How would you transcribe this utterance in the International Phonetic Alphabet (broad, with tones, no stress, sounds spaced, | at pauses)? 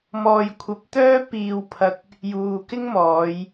m ɔː˨ j kʷʰ ɐ˨˥ p̚ t̪ œː˥ p iː˨ w pʰ ɐ˨ k̚ | j uː˨ k ɪ˥ ŋ m ɔː˨˧ j